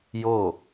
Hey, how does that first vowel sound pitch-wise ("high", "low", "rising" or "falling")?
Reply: falling